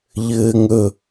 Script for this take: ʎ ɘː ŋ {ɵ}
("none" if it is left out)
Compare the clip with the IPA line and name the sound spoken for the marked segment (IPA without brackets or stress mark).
ɵ